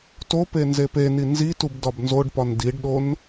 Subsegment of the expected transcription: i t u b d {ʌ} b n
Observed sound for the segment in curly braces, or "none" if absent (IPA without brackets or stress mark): ɒ